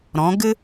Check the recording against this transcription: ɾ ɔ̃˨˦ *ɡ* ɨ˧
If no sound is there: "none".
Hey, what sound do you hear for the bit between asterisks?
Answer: ɡ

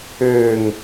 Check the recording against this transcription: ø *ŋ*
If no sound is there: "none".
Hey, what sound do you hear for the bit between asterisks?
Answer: ŋ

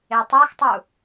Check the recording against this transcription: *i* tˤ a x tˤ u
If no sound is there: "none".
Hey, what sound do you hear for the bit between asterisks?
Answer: e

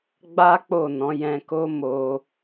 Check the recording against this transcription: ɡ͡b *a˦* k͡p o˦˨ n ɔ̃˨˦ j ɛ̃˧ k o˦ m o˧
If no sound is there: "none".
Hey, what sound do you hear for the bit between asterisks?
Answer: a˦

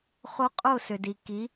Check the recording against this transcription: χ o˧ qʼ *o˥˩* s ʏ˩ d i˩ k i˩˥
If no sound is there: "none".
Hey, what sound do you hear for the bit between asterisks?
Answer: o˥˩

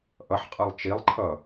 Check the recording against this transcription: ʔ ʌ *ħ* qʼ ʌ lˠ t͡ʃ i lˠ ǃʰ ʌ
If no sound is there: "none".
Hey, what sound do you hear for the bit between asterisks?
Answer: ħ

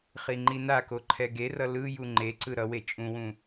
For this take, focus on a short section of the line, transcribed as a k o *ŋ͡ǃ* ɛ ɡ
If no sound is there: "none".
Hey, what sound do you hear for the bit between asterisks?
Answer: ǃʰ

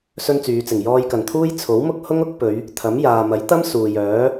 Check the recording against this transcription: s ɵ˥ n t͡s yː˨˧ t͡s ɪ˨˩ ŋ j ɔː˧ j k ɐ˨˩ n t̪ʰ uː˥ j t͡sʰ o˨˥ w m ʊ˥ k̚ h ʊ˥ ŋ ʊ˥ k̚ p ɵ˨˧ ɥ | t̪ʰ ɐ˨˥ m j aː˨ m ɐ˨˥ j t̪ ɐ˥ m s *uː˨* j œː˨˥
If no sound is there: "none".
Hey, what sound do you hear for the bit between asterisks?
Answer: uː˨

